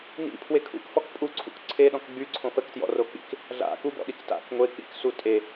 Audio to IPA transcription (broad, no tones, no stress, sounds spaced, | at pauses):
n ḭ pʰ w e kʰ ṵ k f ɔ k pʼ u ǀʰ ṵ k ǀʰ e ɗ ɔ̃ k ɡ͡b y ǀʰ õ f ə k t j ɔ̰ r o k͡p ḭ k | ɮ a̰ k u b ɔ̰ ɗ i k t a̰ k ŋʷ e k͡p ḭ k s u tʼ e